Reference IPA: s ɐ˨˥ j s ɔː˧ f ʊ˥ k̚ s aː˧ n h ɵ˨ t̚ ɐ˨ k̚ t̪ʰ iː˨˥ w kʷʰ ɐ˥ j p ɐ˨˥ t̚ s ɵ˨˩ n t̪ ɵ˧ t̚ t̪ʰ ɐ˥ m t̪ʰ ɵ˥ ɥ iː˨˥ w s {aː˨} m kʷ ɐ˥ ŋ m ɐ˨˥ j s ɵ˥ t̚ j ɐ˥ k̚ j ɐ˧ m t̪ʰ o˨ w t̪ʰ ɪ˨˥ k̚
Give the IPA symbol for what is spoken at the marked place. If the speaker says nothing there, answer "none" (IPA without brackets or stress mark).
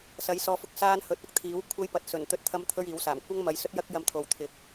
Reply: aː˨˩